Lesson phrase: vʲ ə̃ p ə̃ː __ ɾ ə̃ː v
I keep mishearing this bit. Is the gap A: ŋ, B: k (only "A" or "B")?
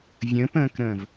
B